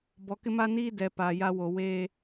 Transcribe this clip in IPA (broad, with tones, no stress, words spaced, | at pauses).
bɔ˨kɪ˦ma˦niː˦ dɛ˨ paː˨ja˦wo˨ weː˦